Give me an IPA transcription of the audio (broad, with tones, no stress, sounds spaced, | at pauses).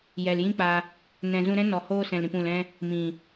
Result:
j ɛ˨ l j ĩ˦ k͡p a˧ | n ɛ̃˨ z ũ˧ ɾ ɛ̃˦ n ɔ˨ h oː˧ s ɛ̃˨ l ɾ ĩ˨ p ũ˨ l ɛ̃˧ | m ĩ˨